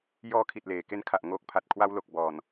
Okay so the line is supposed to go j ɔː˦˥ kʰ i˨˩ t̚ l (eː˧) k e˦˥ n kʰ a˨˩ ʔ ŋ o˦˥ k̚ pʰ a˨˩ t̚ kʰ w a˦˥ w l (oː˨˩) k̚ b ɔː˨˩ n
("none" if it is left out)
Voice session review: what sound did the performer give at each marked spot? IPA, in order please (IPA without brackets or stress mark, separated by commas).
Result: eː˨˩, o˨˩